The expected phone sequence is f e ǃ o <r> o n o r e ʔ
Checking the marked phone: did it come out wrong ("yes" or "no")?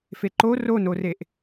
no